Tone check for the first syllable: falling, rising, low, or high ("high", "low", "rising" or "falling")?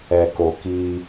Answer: low